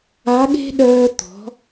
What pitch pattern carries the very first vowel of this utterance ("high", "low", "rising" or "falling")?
rising